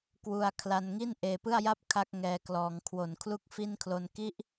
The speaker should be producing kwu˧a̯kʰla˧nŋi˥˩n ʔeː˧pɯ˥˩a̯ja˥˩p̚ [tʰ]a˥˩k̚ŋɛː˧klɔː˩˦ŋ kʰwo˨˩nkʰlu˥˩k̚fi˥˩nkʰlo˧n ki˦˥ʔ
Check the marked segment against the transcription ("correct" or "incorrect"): incorrect